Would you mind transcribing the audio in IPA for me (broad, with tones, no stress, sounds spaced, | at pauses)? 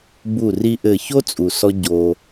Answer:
b u˦˨ r i˦ ʔ ɘ˦˨ ç o˦ t͡sʼ u˨ s ɔ˧ ɟ o˧